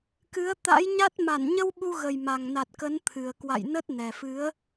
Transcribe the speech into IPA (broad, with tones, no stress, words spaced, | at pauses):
kɨ˨˦ə̯t̪a̰˧˥jɲa˦˥t̚ ma˧˩nɲə˧w ɓu˧ɣə˨˩jma˨˩ŋna˨˩t̚ kə˨˦nt̪ʰɨ˨˩ə̯ kwa̰˧˨jnə˦˥t̚nɛ˨˩ fɨ˨˦ə̯